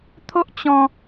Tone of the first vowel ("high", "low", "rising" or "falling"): high